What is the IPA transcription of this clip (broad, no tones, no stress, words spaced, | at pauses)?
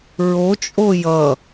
ɹot͡ʃʼo jʌ